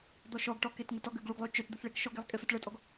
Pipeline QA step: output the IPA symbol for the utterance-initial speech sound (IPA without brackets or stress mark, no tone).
d̪